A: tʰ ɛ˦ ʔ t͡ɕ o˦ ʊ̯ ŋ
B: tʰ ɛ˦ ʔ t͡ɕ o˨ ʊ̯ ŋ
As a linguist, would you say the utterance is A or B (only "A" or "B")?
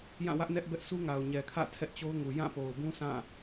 A